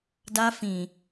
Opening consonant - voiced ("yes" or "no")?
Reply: yes